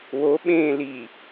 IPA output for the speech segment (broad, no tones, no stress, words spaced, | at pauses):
wo ɓẽːli